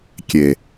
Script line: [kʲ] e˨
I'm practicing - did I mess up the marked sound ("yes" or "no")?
no